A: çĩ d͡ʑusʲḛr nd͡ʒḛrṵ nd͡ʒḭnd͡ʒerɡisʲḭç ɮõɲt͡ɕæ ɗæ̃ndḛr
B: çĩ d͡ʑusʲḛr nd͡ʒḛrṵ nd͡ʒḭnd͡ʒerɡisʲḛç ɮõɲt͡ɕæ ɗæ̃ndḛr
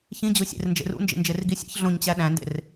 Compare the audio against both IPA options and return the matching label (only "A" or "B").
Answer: B